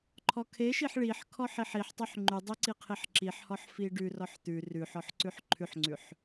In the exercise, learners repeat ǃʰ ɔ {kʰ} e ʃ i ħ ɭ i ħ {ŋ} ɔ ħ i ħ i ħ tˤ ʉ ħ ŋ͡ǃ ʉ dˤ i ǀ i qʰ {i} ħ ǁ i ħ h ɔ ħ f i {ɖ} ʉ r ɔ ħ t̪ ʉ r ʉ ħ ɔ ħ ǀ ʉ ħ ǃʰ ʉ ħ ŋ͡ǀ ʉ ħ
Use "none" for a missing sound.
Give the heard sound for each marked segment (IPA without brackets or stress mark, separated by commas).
kʰ, kʰ, i, ɖ